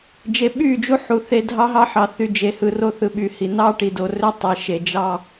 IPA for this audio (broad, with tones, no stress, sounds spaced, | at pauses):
d͡ʒ e˨ ɓ y˦˨ d͡ʒ u˦ ħ u˨ θ e˨ dʱ ɑ˦ ɦ ɑ˦ ħ ɑ˨ θ y˨ d͡ʒ e˨ h ɯ˨ r o˦ θ ɯ˨ ɓ y˨ h i˨ n ɑ˦ ʈ i˨ d o˨ r ø˦ tˤ e˨˦ ʃ e˨ d͡ʒ ɑ˦